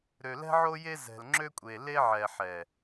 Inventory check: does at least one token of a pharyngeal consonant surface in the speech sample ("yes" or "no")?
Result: yes